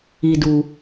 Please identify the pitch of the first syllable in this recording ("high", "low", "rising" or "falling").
high